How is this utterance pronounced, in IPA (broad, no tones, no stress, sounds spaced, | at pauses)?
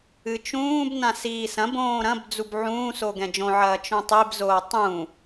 ɨ t͡ʃ ũː b n ã s iː s ɐ̃ b õː ɾ ɐ̃ b d͡z u b ʕ ũː s o ɡ ɛ̃ d͡ʒ õ ʕ ɐː t͡ʃ õ tˤ i b z oː tˤ ũ